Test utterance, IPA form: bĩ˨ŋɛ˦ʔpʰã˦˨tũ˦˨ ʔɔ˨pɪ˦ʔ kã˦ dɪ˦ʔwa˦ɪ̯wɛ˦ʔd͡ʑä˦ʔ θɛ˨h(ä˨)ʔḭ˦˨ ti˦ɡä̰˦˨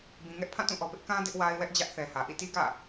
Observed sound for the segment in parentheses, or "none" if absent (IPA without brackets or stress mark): ä˨